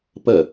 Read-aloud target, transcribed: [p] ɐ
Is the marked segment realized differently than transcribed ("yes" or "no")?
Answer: no